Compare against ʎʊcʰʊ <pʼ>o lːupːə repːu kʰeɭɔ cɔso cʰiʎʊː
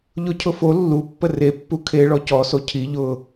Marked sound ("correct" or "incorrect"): incorrect